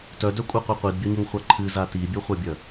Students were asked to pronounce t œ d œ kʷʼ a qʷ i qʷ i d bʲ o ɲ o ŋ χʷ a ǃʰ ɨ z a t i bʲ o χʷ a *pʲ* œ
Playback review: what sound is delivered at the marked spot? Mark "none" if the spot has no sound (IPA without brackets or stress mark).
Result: bʲ